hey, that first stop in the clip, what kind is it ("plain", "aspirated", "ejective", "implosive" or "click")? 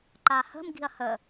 click